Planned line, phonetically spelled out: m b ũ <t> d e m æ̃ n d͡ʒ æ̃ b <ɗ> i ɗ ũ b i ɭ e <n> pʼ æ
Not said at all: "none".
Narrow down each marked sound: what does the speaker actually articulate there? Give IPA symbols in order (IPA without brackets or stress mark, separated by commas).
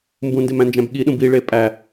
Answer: n, ɠ, none